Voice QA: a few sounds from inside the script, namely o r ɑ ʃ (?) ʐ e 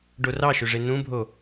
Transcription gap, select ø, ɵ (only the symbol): ø